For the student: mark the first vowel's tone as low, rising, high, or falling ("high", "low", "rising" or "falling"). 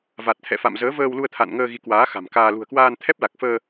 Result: low